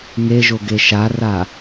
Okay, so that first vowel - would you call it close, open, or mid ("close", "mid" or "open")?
mid